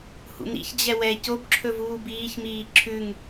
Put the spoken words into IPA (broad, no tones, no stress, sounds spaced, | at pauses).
h ṵ n ḭ ç d͡ʑ ɛ w ɛ c o b ǁʰ ɵ v uː b iː ç m iː ǁʰ ʉ ŋ